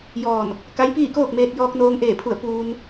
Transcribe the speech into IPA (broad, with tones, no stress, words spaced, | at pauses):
jɔː˧˩n | ka˧˥jpiː˥˨koː˥˨k̚meː˧t̚ jɔː˧k̚noː˧ŋʔeː˧˩pʰu˧˩ə̯ puː˧n